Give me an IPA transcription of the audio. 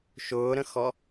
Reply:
ʃ ʊː ɾ ə̃ x ɔ

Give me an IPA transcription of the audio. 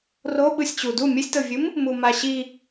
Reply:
r o ɓ ɯ sʲ t͡ɕ u d u mʲ ɯ sʲ t ɤ vʲ ɯ m | m u m a ɕ i

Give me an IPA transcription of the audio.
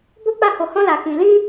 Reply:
b o˦ k͡p a˦˨ h o˧ h ɔ̃˦ l a˧ k ĩ˧ l ĩ˦

